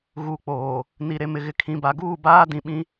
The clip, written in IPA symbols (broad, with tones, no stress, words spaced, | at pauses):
ɣu˨ k͡poː˨ | ni˨ɾe˨mɪ˨ɣɪ˨ kʰĩ˨ba˨ɡuː˦˨ baː˦dĩ˨ɓĩ˦